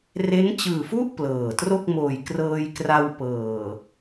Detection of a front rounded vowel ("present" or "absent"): absent